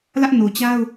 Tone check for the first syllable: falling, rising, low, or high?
high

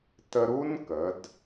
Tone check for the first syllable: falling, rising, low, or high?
high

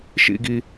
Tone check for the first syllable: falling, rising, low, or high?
falling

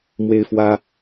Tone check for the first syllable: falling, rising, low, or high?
high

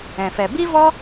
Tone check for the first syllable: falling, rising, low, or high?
low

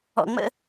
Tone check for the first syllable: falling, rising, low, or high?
low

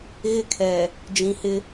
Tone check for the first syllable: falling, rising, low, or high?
high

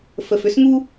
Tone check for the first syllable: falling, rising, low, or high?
low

